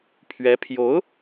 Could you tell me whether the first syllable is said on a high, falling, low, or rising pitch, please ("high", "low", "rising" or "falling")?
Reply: rising